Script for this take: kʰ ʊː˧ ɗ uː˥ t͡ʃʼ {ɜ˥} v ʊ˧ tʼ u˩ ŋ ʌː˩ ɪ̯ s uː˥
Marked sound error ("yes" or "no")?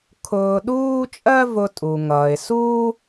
no